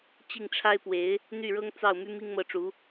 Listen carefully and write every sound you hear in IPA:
t͡ɕ i˥˩ ŋ ʈ͡ʂʰ a˥ ɪ̯ p w e˧˥ ɪ̯ | n̪ y˥˩ ɻ ɤ˥ ŋ t͡s ɑ˥˩ ʊ̯ m y˥ m i˥ ŋ m ɤ˧˥ ʈ͡ʂ u˧˥

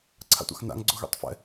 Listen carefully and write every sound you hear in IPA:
ǀʰ a̰ tʷ a̰ x n a̰ ŋ ɡ͡ǀ o ɣ ɛ̰ tˤ f ɛ̰

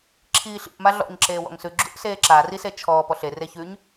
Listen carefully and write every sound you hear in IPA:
ǁʰ iː ɬ ḭ ʔ m a ɮ ɔ̰ ɲ ǁ eː w ɔ̰ ŋ s ʉ ɡ͡ǁ ṵ ʔ s eː ǁ a r i s e t͡ʃʰ ɔː p ɔ ɬ e r e ç ʉ ɲ

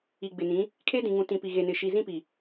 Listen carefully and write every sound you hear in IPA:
i˨ ɡ͡b ɪ˨ n ĩ˨˦ | kʰ e˦ d ĩ˨ ŋ ũ˨ t ĩ˨ p i˨ ɣ e˨ n ɪ˨ ʃ i˨ z ĩ˦ p i˨

